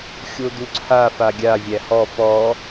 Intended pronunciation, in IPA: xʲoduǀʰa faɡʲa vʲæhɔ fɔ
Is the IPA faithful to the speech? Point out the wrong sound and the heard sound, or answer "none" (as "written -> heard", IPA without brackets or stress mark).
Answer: none